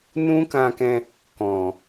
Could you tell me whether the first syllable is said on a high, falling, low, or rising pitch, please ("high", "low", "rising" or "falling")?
high